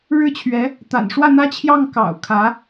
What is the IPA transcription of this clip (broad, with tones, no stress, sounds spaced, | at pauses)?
ɻ ɻ̩˥ t͡ɕʰ ɥ ɛ˧˥ | t̪ a̰˨˩ n ʂ w ä˥˩ n̪ ä˥ t͡ɕʰ j ɑ˥˩ ŋ k ɑ̰˨˩ ʊ̯ kʰ ä˧˥